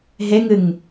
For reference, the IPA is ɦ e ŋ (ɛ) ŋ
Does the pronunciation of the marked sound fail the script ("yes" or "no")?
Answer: yes